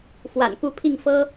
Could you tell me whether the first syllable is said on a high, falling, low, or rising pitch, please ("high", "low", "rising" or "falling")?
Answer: low